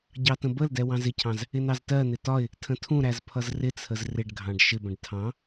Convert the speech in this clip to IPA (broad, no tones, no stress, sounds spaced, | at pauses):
ɟ ɑ t ə̃ b ə l d ɛ w ɑ̃ z ɪ cʰ ɑ̃ z | ɪ n ɑ z t ɜ n̪ ɪ t ɒ ɪ̯ | tʰ ə̃ tʰ ũ ɾ æ z pʰ ʌ z r ɪ t͡sʰ ə z r ɪ ɖ ɡʱ ɑ̃ ɖ ʃ ɪ b ə̃ ɖ tʰ ɑ̃